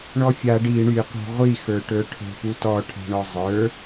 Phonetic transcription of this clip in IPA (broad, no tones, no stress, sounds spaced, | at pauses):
ɳ ɔ fʲ a ɖ i ɳ y qʷ æ̤ ʁʷ i x ə˞ ʈ ə˞ ʈʰ ə̤ p u t ɔ ʈʰ a̤ ɳ ɔ zˤ ə˞